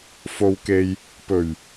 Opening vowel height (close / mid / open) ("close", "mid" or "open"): mid